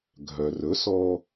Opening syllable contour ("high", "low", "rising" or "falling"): low